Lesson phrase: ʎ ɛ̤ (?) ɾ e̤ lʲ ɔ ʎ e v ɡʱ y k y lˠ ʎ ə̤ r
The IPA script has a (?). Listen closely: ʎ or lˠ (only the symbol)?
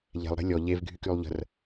lˠ